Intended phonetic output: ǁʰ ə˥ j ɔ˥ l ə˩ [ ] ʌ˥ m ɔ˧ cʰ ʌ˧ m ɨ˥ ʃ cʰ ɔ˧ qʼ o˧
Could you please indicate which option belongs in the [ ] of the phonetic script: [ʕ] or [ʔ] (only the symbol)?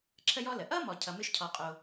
ʔ